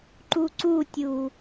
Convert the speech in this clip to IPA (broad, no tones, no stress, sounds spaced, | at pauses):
ǃ u ǀ u tʲ u